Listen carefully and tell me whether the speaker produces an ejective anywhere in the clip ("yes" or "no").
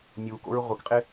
yes